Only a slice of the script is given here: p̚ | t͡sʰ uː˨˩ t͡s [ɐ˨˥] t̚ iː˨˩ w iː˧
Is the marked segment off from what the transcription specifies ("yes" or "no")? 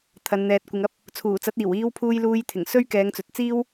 no